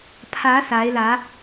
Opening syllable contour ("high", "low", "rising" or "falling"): rising